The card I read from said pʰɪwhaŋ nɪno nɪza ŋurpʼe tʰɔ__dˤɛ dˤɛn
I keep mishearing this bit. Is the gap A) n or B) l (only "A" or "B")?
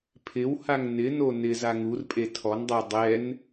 A